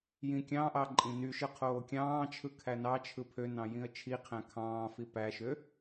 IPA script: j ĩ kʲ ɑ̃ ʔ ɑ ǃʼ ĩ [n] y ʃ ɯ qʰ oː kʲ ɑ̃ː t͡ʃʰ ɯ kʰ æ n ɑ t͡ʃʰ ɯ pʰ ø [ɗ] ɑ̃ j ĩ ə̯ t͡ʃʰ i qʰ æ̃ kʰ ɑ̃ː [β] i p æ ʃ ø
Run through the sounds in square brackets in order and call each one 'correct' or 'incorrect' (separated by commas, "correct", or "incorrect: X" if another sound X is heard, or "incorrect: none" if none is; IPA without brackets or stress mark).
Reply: correct, incorrect: n, incorrect: f